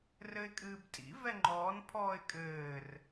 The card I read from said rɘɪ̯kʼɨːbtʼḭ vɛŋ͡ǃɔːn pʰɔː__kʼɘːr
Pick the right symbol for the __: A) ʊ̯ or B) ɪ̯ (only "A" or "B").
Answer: B